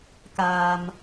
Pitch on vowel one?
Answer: low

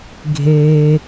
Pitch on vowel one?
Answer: low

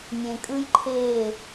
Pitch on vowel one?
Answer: low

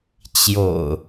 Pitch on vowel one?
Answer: low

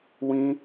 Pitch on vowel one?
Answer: high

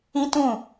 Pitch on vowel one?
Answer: high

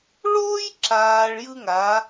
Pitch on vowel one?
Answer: high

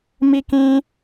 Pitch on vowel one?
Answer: high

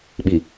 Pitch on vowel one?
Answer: low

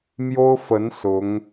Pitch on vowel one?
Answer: high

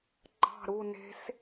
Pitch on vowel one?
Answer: falling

